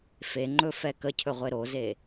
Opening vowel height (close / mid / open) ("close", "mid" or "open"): mid